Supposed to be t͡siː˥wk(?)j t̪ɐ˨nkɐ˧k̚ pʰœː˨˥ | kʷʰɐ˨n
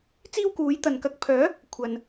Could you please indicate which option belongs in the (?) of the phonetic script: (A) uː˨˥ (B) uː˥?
A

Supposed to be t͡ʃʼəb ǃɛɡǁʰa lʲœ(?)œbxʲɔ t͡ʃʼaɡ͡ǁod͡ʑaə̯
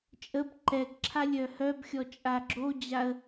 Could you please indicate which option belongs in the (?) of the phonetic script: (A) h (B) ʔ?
A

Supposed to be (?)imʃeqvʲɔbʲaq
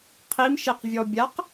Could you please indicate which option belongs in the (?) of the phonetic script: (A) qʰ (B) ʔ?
A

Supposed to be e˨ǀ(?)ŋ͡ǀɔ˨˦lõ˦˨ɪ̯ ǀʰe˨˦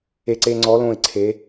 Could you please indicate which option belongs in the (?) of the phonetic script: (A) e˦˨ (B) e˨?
B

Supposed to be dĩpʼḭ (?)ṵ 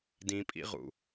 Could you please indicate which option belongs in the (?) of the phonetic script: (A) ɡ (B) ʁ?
B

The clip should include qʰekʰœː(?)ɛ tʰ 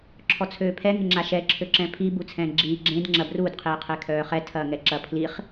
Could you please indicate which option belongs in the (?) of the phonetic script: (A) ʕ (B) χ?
B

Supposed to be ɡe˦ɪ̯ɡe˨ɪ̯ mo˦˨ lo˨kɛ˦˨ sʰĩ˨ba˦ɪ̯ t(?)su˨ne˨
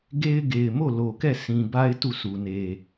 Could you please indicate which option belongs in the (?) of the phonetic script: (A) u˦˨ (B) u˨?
A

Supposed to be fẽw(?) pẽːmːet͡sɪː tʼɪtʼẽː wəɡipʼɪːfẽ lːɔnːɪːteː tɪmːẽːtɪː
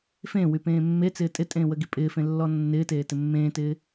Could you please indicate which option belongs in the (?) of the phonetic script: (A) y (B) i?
A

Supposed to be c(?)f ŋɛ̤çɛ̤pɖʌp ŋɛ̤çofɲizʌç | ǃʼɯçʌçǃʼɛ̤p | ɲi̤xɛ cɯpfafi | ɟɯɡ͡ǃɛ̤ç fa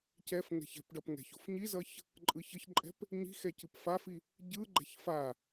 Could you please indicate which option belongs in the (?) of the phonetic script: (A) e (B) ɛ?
B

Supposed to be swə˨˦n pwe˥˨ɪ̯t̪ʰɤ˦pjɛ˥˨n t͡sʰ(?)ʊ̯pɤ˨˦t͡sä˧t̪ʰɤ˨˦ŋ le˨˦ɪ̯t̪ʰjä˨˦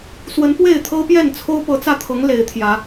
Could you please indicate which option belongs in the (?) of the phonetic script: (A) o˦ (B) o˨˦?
A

